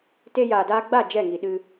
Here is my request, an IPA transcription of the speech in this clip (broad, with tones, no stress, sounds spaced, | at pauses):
t e˧ j aː˨ d aː˧ ɡ͡b a˦˨ d͡ʒ ɛ˦˨ ŋ i˨ ɗ ɨ˧